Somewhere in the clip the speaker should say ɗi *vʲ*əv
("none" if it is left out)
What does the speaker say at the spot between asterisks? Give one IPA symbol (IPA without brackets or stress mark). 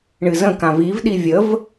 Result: vʲ